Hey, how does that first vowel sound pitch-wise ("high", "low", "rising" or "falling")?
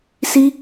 high